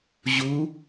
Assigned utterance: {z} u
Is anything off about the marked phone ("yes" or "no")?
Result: yes